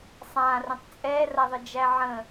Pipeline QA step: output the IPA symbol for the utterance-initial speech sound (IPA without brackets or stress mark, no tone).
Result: sˤ